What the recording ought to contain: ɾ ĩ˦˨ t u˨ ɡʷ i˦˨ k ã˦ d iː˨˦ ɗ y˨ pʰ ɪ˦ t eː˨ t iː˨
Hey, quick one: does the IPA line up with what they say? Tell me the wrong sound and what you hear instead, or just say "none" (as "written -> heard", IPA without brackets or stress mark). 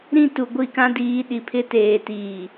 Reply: y˨ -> i˨